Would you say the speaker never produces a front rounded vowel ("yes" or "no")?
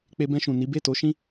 yes